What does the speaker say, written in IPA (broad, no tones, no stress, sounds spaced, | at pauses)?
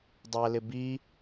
dˤ æ l ɪ b i